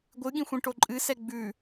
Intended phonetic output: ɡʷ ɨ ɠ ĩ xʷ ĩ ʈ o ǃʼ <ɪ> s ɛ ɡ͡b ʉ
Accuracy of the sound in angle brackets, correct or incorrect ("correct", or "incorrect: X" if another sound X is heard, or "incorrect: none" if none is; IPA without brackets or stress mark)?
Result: incorrect: ɨ